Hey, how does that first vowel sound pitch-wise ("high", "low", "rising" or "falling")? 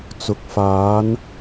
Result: rising